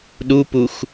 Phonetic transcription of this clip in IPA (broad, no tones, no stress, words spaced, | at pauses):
ɗupux